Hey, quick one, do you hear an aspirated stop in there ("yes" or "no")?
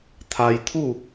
yes